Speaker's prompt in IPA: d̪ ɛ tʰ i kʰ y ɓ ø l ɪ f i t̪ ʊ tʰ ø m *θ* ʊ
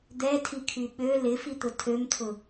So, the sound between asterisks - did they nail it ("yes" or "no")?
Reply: no